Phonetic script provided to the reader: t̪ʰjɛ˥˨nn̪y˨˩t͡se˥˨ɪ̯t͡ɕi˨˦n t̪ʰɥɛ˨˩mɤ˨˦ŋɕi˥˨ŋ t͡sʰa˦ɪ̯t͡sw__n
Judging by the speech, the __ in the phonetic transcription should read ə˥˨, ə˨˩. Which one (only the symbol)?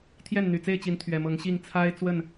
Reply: ə˥˨